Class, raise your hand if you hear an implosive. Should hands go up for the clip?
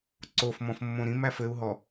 no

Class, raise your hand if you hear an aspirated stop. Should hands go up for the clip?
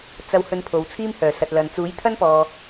yes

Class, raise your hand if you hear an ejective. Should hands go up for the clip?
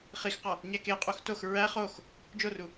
yes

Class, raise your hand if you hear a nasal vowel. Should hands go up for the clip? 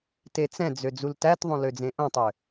yes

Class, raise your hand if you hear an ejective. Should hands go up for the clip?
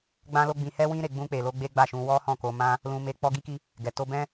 no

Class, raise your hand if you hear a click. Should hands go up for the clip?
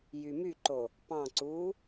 yes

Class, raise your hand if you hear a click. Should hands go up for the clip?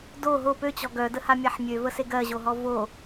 no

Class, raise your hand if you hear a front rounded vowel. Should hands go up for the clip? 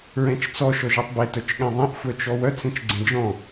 yes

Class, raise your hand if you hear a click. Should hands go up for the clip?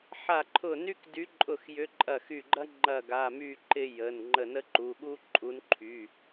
yes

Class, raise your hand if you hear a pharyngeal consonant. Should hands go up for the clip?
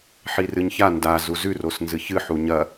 yes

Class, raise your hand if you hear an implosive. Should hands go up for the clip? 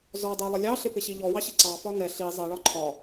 no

